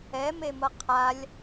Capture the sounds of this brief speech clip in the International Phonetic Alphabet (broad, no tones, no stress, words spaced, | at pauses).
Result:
ɛmemʌ qʰalʲ